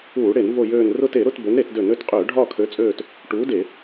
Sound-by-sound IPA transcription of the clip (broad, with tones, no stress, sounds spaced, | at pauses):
uː˧˩˧ ɽ e˧˩˧ n v o˦˨ j øː˦˨ n r ʊ˦˨ t e˧˩˧ ɾ ʊ˦˨ t b ø˨˥ n ɾ e˧˩˧ t d ø˧˩˧ n ø˦˨ t qʼ øː˧˩˧ ɖʱ ɒː˦˨ kʰ ø˨˥ t͡sʼ øː˦˨ t | ʈ uː˨˥ d e˧˩˧